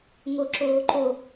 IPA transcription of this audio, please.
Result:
ŋ o ǁ oː ǃ o

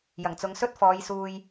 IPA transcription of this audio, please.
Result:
j ɐ˨˩ ŋ t͡s ʊ˨˧ ŋ s ɵ˥ t̚ f ɔː˨˧ j s uː˧ j

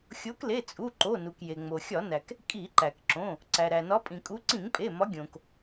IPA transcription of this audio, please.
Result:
xʲ o˨˦ k l e˩˧˩ t͡sʼ u˩˧˩ ǃ o˩˧˩ n u˩ k j e˩ ŋ͡m o˩ xʲ ɒ˧˩˧ n æ˩ k | kʼ i˧˩˧ ǃ æ˩ k ǁ õ˩˧˩ | ǀ æ˩ ɾ æ˩ n ɒ˨˦ pʼ ĩ˩ kʼ u˨˦ ǀ ĩ˧˩˧ ŋ pʼ e˩˧˩ m ɒ˨˦ ɡʲ õ˩ k

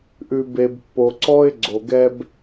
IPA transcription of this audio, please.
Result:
ʔ ʉ˨ b e˨ b pː o˨ ǀ ɔ˦ ɪ̯ ɡ͡ǀ o˨ ɡ ɛ˦ b

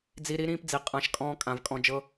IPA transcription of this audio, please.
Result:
d͡z i˧ ɾ i˦ ɾ ĩː˦ p d͡z i˨ qʼ ã˦ ʃ kʼ ɔ̃ː˧ kʼ ã˨ v kʼ ɔ̃˧ d͡ʒ ɤ˦

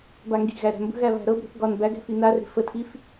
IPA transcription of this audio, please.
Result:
b a ŋ ɡ i̤ ɣ æ ɾ æ̤ m b ə̤ ɣ æ β æ̤ ɾ ɤ b ɾ ə̤ θ ɡ ɒ n b æ ɡ æ̤ f i n a r e̤ f ə tʰ i f

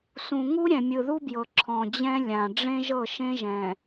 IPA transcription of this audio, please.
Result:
s ũ˨ ŋ u˦ ɾʲ ɛ̃˨ mʲ ɯ˨ ð u˦ b j ɤ˨ ǁʰ ɔ̃˨ d͡ʑ ɛ̃˦ lʲ ã˨ ɖ͡ʐ ẽ˦ ʒ ɤ˦˨ ʃ ẽ˦ ʒ ɛ̃˨

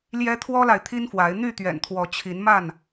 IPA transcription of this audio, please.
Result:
l j ɛ˦ t̪ʰ w ɔ˦ l a˨ ɪ̯ t̪ʰ i˦ n f w a˨˦ ɪ̯ n̪ y˥˨ t̪ ɥ ɛ̰˨˩ n t̪ʰ w ɔ˨˦ t͡ɕʰ i˨˦ n m a˥˨ n

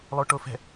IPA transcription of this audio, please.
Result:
lˠ o ʈ o f ɛ̤

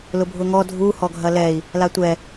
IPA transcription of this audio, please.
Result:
l ʊ bʱ ʊ ŋ ɔ dʱ u h ɔ ɡʱ ɐ l ɛ i̯ | l a tʷ ɛ

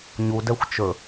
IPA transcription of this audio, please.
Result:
ɲ u d ɛ xʷ t͡ʃ ɵ

